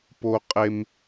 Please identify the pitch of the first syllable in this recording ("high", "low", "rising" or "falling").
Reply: high